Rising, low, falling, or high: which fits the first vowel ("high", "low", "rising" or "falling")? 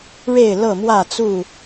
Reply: falling